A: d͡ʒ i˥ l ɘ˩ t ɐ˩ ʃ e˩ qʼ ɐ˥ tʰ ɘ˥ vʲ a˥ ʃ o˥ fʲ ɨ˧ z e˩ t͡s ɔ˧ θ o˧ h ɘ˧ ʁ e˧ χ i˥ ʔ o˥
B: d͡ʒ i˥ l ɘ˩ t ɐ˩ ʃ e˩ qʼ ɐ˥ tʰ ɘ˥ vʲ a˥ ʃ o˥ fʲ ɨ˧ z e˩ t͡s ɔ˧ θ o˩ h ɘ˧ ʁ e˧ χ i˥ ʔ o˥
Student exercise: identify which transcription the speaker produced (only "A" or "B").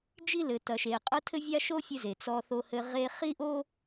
A